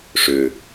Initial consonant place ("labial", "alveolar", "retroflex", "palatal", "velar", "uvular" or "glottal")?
retroflex